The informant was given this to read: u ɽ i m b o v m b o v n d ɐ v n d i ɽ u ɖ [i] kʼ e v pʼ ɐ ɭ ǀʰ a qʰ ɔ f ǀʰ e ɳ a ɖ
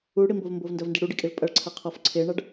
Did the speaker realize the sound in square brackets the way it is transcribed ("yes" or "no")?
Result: yes